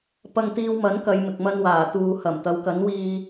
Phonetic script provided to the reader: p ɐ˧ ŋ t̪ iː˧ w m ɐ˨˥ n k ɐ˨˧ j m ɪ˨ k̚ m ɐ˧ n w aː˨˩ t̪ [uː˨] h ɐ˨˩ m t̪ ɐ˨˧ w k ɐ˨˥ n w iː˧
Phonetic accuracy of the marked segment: correct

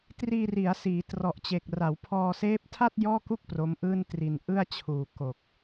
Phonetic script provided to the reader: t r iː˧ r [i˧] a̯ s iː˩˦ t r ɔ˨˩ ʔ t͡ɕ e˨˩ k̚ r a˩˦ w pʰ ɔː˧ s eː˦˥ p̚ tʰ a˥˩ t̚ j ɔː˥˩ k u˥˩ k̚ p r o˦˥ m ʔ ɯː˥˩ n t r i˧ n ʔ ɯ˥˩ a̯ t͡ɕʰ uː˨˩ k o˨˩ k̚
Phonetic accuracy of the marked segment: incorrect: i˩˦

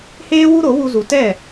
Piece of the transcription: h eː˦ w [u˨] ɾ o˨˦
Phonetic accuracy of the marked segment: incorrect: u˦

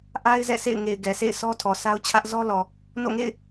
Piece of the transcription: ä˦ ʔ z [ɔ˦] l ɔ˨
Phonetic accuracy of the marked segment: correct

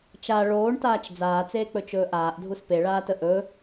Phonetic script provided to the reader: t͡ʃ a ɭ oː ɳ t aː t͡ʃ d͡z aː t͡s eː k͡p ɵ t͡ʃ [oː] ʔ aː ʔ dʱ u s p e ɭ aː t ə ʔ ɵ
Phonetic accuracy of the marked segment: incorrect: ɵː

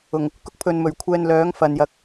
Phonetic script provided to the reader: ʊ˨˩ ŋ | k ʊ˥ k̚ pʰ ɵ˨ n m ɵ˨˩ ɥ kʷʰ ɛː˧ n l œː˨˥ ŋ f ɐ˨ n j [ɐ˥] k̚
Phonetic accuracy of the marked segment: incorrect: ɐ˧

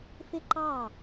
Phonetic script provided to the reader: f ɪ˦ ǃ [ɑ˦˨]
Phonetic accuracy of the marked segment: correct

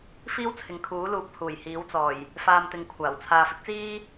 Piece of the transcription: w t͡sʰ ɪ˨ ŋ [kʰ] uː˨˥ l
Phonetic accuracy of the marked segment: correct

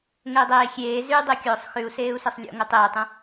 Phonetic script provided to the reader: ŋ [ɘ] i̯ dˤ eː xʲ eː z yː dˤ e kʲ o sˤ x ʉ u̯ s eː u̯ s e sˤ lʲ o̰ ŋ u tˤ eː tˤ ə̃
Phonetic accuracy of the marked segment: correct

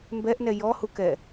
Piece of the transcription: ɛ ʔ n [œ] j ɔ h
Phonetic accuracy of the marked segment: incorrect: ɛ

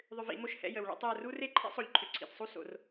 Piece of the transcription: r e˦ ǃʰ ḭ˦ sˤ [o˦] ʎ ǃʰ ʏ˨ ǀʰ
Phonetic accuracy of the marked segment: incorrect: o˨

